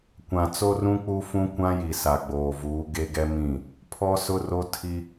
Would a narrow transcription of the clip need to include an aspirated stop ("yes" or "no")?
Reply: yes